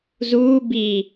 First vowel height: high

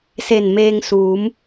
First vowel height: mid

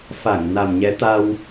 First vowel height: low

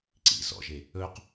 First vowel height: high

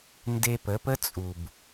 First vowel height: mid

